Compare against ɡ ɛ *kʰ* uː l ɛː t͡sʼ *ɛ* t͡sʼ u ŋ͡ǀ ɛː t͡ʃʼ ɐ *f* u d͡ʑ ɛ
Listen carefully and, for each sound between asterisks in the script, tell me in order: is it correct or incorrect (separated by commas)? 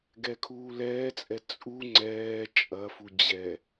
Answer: correct, correct, correct